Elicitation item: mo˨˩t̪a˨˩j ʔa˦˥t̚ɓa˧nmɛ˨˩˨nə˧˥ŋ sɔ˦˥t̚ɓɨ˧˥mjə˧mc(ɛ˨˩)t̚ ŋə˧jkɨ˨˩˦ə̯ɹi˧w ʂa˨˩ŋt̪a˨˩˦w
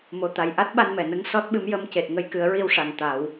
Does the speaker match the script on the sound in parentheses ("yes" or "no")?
no